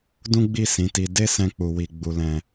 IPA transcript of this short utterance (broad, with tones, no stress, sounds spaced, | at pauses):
d ũ˦ ɡ͡b i˦˨ s ĩ˨˦ t i˧ d e˦ s ɛ̃˦ k͡p u˧ w i˧ ɡ͡b u˧ l ɛ̃˧